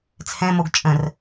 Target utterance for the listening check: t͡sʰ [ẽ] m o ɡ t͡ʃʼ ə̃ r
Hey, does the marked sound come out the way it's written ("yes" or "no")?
no